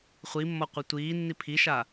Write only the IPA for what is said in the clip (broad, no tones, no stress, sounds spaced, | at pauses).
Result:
χʷ i mː ɔ qʷ e tʷ iː nː i pʰ i ʃ a